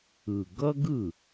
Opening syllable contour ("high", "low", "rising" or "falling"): low